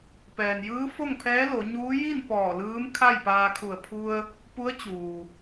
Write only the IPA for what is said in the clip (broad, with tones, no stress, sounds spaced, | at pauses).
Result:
p ɛː˩ n j ɯː˧˥ f o˥˨ ŋ pʰ ɛː˧˥ l o˩˧ ɲ uː˧˥ j i˥˨ n p ɔː˧˩ l ɯː˧˥ m kʰ a˥˨ j p aː˧ kʰ u˧˩ ə̯ pʰ u˧ ə̯ | p u˧˥ ə̯ t͡ɕ uː˩